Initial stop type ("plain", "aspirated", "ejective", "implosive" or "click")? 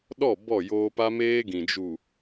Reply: implosive